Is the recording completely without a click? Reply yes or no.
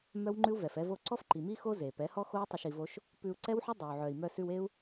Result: no